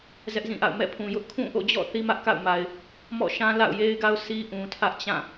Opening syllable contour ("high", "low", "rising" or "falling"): high